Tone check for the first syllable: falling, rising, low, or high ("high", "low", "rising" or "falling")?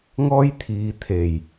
high